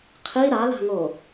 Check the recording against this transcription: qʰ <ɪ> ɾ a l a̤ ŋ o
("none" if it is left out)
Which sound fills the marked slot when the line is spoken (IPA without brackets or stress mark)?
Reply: i